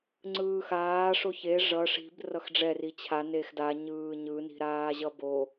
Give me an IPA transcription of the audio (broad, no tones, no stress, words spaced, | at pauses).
ŋ͡ǀɯːxaː ʂoçe ʐʌ ʂi̤b rʌxɖ͡ʐɛri t͡ɕʰa nexdaɲɯː ɲɯni̤ɾaːʑʌ bo